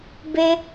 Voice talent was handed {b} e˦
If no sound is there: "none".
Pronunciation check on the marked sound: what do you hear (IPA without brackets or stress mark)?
b